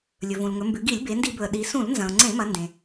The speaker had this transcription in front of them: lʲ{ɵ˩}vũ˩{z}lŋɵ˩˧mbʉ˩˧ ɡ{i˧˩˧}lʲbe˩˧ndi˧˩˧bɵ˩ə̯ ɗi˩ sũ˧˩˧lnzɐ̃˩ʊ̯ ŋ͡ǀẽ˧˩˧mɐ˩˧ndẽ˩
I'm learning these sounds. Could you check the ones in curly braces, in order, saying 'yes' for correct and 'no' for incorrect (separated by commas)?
yes, no, yes